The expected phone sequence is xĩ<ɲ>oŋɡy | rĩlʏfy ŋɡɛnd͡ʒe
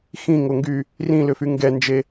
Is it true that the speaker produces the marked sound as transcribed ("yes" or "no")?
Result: no